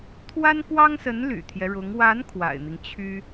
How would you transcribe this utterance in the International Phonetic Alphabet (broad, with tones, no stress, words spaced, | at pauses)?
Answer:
t̪ʰwa˥nkwɑ˥ŋsə˧˥n ly̰˨˩t̪ʰjɛ˦ɻʊ˧˥ŋ wa˧˥n kʰwa̰˨˩ɪ̯n̪i˦ŋt͡ɕʰy˥